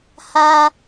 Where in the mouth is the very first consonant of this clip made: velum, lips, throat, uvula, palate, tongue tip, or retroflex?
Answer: throat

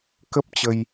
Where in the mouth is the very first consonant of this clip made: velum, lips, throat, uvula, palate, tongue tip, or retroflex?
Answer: velum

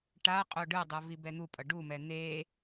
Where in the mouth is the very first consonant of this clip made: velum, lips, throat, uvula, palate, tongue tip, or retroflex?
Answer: retroflex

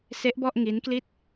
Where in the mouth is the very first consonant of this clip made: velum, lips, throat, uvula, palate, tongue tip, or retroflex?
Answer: tongue tip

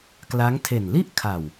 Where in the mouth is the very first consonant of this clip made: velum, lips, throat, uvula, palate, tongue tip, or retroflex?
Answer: velum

